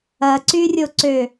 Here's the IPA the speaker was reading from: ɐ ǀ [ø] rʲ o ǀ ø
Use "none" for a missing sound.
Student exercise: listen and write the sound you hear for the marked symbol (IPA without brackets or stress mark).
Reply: y